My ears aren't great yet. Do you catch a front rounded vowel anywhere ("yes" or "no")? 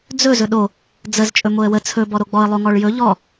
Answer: no